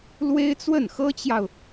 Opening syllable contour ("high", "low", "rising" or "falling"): high